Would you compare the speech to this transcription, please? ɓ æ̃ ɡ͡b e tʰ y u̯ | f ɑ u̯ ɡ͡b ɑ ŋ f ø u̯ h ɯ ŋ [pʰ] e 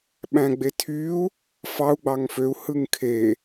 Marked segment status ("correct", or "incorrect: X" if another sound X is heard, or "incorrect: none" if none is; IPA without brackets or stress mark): incorrect: kʰ